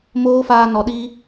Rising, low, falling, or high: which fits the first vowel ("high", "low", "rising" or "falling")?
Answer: high